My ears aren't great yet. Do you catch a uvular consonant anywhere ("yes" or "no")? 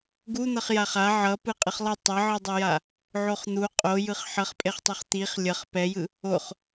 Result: yes